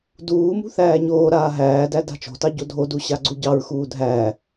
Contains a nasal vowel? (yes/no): no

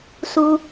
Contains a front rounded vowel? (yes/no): no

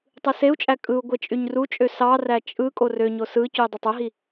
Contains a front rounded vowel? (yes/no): yes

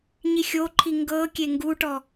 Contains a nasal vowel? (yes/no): no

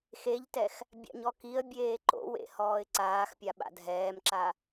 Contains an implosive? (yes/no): yes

